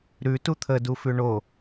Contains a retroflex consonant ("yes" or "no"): yes